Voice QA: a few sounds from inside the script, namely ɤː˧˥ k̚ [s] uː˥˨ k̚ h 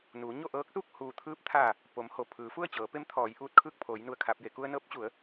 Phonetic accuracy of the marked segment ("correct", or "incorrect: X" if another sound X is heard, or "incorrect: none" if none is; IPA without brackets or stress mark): correct